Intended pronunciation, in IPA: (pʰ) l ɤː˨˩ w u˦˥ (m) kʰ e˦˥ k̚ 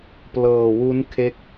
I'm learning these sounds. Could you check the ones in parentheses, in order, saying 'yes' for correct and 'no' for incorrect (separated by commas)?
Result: no, no